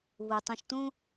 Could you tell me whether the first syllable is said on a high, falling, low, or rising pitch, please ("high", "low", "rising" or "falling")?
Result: low